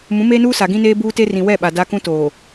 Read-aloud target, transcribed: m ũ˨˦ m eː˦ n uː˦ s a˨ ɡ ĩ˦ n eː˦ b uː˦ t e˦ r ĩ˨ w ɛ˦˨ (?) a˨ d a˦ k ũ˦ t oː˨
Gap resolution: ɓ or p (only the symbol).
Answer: ɓ